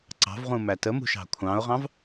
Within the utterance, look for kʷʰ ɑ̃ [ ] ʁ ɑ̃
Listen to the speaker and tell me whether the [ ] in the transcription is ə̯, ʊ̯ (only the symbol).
ʊ̯